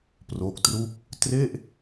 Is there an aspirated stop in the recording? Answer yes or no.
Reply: no